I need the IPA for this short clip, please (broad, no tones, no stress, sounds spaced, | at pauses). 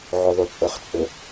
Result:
ʕ ɵ ðˤ u t͡sʼ ɤ χ t͡sʼ ɤ